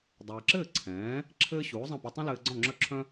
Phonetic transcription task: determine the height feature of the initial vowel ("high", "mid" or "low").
mid